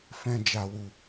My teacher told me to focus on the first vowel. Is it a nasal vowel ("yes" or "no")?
yes